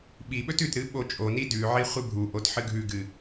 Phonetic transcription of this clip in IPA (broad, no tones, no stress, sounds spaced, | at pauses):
ɓ i ɓ ɵ t ʉ t ɾ ɨ ɓ o t͡ʃʼ o n i d ʉ ʕ i χʷ ɨ bʱ u ʔ o t ħ ɨ ɡʱ ʉ ɡ ɨ